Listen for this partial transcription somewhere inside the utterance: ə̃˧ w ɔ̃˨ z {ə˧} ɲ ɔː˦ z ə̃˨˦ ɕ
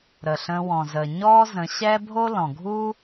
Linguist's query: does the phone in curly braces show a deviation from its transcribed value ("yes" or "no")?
yes